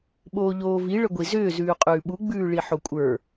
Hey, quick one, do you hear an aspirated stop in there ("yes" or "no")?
no